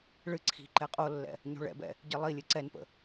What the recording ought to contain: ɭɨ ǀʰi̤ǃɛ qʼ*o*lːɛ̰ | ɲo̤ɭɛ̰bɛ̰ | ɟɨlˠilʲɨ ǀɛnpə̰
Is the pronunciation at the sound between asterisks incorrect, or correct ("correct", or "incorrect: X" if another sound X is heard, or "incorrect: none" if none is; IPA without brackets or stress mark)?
correct